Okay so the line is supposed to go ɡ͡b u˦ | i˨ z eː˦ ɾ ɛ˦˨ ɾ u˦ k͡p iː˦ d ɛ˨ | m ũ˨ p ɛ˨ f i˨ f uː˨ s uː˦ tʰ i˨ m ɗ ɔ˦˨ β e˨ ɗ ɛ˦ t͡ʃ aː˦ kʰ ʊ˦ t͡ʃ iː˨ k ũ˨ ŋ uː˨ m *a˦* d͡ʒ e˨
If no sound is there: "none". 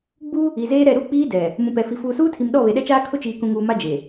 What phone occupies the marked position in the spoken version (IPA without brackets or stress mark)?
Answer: a˦